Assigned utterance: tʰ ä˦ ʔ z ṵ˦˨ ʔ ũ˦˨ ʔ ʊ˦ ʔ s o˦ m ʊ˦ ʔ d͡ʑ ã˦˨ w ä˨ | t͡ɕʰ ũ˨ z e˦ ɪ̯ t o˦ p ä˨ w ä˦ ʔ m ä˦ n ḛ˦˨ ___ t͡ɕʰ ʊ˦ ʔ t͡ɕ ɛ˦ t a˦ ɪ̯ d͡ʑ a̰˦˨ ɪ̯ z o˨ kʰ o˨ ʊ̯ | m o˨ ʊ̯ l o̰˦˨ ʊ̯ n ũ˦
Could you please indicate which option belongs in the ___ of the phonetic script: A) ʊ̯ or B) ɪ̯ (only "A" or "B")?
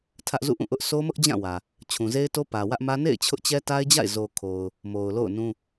B